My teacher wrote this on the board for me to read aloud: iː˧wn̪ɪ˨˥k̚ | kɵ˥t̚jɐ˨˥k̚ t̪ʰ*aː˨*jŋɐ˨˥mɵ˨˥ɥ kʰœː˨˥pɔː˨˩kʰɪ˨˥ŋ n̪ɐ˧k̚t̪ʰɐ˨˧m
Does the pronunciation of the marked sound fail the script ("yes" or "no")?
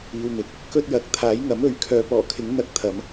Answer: yes